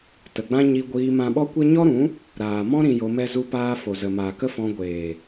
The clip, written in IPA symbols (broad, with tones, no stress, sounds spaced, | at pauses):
t ə˨ ɡ͡b ã˦ ɲ i˧ ɡʷ iː˧ m ã˧ ɓ ɔ˦ kʷ e˦ ɲ ɔ˦ ɾ ũ˨˦ | ɾ aː˨ m ɔ̃˦ ɾ ĩ˨ j o˧ m ɛ˦ z u˦ p aː˦ f o˨ z ə˨ m aː˨ k ə˦ f ɔ̃˧ ɡʷ eː˨